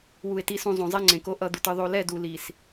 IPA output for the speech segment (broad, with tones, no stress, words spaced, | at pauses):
wu˨e̯ti˨sũ˨ zˤõ˨zˤɛ˦ŋ͡ǀẽ˨ko˦ ʔʌ˦˨d̪u˨tɯ˨ ðˤo˨lɛ˦˨ du˨li˨s